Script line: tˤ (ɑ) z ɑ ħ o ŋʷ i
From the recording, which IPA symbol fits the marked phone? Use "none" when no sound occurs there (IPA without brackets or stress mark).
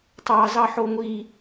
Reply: ɑ